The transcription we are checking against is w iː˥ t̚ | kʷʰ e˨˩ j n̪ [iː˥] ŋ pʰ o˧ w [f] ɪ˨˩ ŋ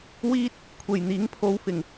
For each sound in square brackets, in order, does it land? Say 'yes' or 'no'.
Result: no, yes

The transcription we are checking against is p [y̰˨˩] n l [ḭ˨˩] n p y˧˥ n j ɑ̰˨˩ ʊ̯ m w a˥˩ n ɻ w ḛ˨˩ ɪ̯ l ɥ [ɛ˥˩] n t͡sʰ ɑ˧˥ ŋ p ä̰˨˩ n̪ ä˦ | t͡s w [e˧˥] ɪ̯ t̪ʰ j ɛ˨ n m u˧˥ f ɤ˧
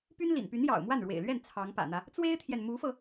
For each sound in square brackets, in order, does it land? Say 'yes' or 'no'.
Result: no, yes, yes, no

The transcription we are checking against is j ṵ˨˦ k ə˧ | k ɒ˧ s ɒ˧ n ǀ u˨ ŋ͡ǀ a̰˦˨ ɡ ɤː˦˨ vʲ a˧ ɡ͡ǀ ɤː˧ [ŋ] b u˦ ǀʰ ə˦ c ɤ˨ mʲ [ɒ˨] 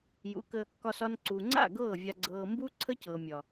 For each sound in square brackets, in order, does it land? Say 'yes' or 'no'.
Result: no, yes

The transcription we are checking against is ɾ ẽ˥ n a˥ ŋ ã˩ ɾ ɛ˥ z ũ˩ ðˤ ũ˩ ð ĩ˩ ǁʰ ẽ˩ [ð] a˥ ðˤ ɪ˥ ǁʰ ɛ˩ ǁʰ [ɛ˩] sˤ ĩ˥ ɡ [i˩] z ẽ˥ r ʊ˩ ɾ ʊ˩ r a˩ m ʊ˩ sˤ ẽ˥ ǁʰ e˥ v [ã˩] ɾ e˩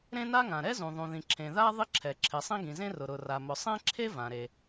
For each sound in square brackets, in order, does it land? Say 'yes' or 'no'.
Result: yes, no, no, yes

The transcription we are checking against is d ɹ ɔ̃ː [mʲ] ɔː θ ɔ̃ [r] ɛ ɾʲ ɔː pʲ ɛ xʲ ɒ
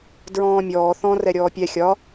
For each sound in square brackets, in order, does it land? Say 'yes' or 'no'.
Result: yes, yes

